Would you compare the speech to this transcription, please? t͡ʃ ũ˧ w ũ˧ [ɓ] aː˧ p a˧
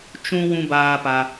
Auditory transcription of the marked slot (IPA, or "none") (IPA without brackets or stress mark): b